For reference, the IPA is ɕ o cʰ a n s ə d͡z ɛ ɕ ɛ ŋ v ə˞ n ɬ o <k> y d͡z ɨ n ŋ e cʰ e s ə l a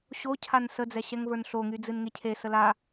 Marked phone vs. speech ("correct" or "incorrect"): incorrect